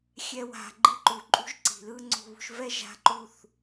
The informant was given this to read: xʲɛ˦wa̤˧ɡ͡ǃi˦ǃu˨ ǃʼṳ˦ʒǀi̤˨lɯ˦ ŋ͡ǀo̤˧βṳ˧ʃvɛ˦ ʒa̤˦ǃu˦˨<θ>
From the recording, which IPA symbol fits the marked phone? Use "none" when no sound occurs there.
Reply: θ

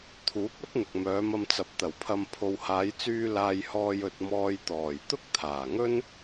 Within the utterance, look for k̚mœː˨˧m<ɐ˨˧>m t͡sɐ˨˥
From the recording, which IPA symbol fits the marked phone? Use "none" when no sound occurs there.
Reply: ɐ˧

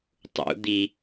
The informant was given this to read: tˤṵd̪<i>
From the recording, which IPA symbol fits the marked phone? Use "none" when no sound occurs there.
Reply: i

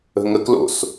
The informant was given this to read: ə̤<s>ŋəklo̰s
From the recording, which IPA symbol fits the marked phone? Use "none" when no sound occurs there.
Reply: none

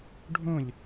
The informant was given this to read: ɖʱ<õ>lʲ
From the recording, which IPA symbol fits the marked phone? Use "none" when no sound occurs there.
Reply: õ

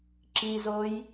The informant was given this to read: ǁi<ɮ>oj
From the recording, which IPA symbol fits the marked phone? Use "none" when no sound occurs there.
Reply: z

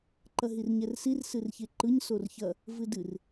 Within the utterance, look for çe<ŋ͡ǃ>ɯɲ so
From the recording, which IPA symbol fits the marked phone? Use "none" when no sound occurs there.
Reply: ǃ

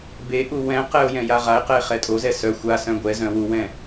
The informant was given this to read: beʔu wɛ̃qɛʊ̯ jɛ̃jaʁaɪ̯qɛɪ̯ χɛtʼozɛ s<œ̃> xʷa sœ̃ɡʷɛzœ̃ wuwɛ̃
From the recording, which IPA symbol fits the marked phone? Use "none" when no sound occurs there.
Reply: œ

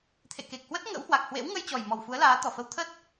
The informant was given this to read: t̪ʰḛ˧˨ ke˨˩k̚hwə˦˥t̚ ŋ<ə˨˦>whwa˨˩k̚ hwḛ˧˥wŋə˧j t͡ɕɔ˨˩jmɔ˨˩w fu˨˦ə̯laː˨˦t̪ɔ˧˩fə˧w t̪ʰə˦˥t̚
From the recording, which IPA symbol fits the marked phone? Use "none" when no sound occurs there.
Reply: ə̰˧˥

